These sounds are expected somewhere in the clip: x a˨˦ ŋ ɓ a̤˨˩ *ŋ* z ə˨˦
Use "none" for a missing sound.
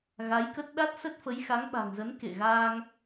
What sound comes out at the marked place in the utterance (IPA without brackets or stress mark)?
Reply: ŋ